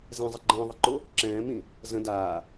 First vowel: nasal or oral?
nasal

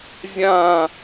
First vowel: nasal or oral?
nasal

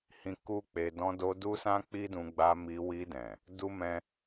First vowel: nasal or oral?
nasal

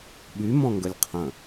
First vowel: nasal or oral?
oral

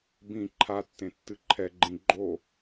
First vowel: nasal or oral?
nasal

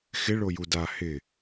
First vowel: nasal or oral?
oral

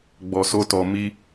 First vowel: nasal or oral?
oral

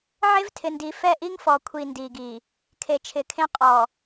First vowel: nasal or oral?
oral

